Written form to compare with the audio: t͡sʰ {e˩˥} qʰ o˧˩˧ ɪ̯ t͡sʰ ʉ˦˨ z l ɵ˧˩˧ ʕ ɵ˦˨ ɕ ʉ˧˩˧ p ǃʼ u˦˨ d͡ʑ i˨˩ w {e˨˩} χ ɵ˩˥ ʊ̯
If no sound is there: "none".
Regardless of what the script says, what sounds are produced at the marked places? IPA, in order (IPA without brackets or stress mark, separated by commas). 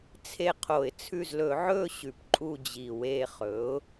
e˦˨, e˦˨